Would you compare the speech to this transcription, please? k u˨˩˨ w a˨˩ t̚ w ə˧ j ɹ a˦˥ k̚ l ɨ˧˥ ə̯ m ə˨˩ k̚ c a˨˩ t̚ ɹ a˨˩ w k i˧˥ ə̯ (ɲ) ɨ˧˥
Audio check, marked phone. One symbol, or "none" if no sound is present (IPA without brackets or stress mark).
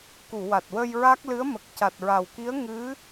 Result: ŋ